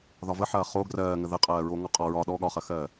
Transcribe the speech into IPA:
ð ɒ v ə ħ ɐː χ o ɡ r ɜː ŋ ə ð ə qʼ ɜː ɹ oː ŋ ɔ qʼ ɒ ɹ ɒ ɗ ɔ ɠ ɒ χ ɐ x ɜː

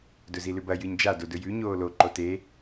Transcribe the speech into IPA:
d ɵ z i l ʉ b ɐ j ɨ ɲ d͡ʒ a d o d ɵ j ʉ ɲ oː l o ǃ o t e

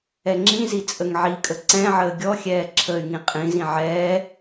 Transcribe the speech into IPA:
ɛ ŋ͡ǁ ĩ z i t͡sʼ ə ŋ ʕ i kʼ ə ǀ ɛ̃ ʕ əː ɡʲ ɔ xʲ ɛː ǁʰ ə y̯ ŋ ĩ qʼ ĩ z ĩ ʕ ɛː

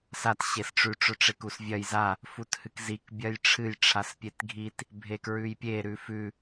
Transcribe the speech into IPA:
s a t ɕ e s ʈ͡ʂ ʉ ʈ͡ʂ ɵ ʈ͡ʂ e k u s vʲ ɐ j z a | f u t h ɨ k z i k bʲ ɐ j ʈ͡ʂʰ ɨ j ʈ͡ʂʰ a s pʲ e t ɡʱ i t | bʱ e k ɹ ʉ j pʲ e ɾ ʉ f ʉ

